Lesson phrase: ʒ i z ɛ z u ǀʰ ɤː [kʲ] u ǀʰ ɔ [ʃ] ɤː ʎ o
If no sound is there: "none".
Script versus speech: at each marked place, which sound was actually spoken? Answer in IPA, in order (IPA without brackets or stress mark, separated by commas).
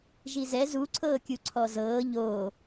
kʲ, z